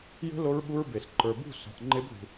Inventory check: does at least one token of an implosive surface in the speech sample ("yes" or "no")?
yes